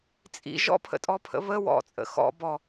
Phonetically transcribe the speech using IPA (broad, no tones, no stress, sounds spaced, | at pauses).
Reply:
t͡sʼ ḭ ʒ ɔ̰ pʰ ə̰ tʼ ɔ pʰ ə̰ β ə w ɔ̰ t͡sʼ ə̰ x ɔ̰ b ɔ